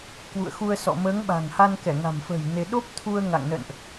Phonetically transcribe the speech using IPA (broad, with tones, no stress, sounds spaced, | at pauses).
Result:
k w ṵ˧˨ ə̯ x u˧ ə̯ s ɔ̰˧˨ m əː˨˦ ŋ ɓ a̤˨˩ ŋ h a˧ n k ɛ˧˩ ŋ a̤˨˩ m f ə̤ː˨˩ j n e˧ ɗ o˦˥ p̚ t̪ʰ u˧ ə̯ ŋ a̰˧˨ ŋ n ə̰˧˨ n ʔ